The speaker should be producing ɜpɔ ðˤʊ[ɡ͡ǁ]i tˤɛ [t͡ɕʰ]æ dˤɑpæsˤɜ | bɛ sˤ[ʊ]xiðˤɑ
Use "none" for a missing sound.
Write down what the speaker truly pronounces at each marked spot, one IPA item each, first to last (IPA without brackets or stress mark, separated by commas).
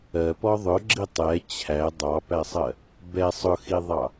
ɡ͡ǁ, t͡ɕʰ, ʊ